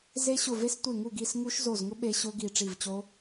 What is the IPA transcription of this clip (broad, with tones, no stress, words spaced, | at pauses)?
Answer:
ze˦˥ɕʊ˦˨ve˦˥s tʷe˦˨ŋu˦˨ɡi˦˨s ŋu˦˥ʃzo˦˨zŋʊ˦˥ ɓe˦˥ ɕʊ˦˥ɡi˦˨ ʈ͡ʂi˦˨vt͡ɕo˦˥